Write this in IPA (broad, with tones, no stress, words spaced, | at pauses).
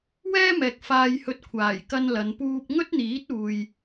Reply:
wɛː˥mɛː˨k̚ faː˧jhɵ˧t̚kʷʰaː˨˩j kɐ˧nlɐ˨˧n puː˧p̚ŋɵ˥t̚n̪iː˨˥t̚uː˨j